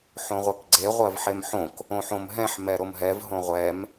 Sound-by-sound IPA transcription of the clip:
ħõʁʷekɡ͡ǀe ʁʷɜvħemħõk | õħõmɦɛ̃ħ mɛɾomɦɛv ɦõʁʷɛm

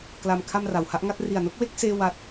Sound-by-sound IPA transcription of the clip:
kla˧m kʰa˧m ra˩˦wha˦˥ʔŋa˥˩t̚ ri˨˩a̯no˥˩k̚we˥˩k̚ seː˥˩ wa˥˩t̚

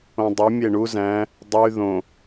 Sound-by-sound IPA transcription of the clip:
õdˤu mʲeɳu zæ̃ | dˤy ðõ

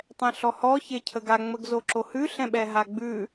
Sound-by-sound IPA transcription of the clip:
tˤɛ̃ɬɔhɔ çecʰəɡa ŋ͡məɡzoǁohʉ ɬɛ̃ɓɛɦaɡ͡bʉ

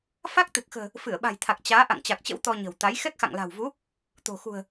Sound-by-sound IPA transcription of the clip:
fa˦˥k̚t̪ɨ˨˩k̚xə̤ː˨˩ | fɨ˧˩ə̯ɓa̤˨˩jt̪ʰa˨˩k̚ t͡ɕaː˨˦ ʔa̰˧˨ŋt͡ɕa˨˩k̚t͡ɕə̰˧˥w t̪ɔ˧ɲə̤˨˩wt̪a˨˦j xɛ˦˥k̚xa̰˧˨ŋla̤˨˩wvu˨˦ | t̪o̤˨˩ xṳ˨˩ə̯

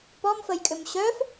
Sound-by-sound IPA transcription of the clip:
pɔmfəjkʼʏm ɕœf

